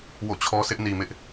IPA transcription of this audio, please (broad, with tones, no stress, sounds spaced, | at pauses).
w o̰˦˨ t͡ɕʰ ɔ˦ s ɪ˦ ʔ n i˨ m ɪ˦ ʔ